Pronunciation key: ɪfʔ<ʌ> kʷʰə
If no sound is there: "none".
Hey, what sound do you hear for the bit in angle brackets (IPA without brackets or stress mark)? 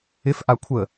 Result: a